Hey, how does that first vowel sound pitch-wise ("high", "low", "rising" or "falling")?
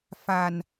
low